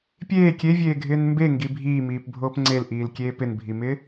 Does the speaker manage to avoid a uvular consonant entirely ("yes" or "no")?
yes